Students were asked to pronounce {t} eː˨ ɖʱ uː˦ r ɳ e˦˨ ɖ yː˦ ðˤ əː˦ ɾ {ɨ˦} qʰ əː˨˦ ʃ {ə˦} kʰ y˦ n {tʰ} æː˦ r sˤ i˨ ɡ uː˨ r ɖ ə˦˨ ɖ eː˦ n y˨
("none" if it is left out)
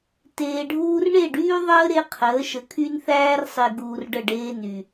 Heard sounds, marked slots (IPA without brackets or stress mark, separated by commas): t, e˦, ə˨, θ